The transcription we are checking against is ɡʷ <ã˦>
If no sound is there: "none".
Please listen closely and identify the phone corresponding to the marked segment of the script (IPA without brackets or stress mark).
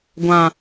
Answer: ã˨